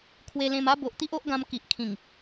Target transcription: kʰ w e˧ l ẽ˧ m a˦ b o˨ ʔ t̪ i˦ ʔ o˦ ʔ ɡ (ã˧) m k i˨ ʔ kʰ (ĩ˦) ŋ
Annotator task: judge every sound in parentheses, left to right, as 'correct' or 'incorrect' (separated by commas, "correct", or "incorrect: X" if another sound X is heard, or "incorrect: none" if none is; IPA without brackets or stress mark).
correct, incorrect: ĩ˨˩